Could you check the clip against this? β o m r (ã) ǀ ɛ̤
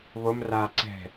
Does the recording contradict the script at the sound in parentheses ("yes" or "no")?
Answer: yes